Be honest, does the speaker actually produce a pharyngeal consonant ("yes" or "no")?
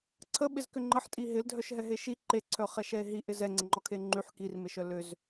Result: yes